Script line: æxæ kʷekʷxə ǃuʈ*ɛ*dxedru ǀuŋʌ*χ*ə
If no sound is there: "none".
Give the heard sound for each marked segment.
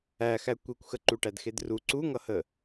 æ, h

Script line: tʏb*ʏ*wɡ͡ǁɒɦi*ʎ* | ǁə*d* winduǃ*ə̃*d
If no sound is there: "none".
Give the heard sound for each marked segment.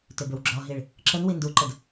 ʏ, ɭ, n, ə

